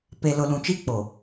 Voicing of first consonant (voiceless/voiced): voiceless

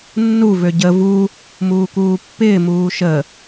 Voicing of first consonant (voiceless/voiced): voiced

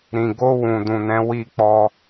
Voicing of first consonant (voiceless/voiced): voiced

